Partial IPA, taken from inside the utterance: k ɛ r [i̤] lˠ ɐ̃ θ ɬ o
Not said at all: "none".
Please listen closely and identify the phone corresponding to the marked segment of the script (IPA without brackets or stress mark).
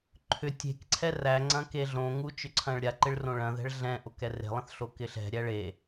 e̤